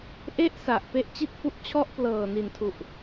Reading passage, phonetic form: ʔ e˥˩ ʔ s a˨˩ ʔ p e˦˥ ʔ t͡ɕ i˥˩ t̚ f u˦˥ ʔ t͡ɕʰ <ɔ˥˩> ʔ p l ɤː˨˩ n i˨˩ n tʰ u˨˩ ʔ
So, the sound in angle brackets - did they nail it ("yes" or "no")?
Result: yes